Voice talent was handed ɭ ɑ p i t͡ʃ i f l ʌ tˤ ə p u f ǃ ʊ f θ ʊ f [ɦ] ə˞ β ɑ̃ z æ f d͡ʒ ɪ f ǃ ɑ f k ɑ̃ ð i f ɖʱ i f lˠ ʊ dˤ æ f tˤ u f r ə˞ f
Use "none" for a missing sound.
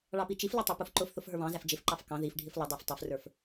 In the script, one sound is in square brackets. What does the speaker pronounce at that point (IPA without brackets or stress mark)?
ɦ